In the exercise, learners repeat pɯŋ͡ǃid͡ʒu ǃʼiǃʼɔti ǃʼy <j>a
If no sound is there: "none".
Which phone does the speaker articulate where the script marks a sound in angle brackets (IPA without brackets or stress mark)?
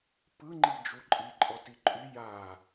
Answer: j